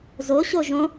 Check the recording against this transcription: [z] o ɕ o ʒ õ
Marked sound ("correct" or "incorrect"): correct